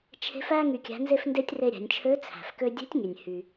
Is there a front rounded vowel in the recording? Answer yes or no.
yes